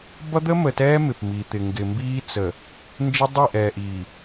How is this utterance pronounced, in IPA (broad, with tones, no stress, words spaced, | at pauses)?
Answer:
bʌ˦d̪ə˦mə˨tɛː˦ mɪ˨pmi˨t̪ɪ˨ ŋɡɪ˨mbiː˦t͡sə˨ | nd͡ʒɪ˦dˤi˦˨ ʔɛː˨ʔiː˨